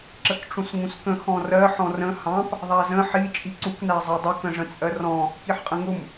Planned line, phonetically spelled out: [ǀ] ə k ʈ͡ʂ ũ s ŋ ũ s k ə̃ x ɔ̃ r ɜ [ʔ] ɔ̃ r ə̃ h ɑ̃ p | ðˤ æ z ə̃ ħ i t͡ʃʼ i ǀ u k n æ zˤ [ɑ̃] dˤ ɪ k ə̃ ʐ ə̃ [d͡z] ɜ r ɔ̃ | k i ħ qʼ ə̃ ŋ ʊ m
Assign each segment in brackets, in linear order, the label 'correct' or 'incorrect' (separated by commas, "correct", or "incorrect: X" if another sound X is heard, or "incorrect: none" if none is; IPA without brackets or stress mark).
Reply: incorrect: ǁ, incorrect: ħ, incorrect: ɑ, incorrect: t͡sʼ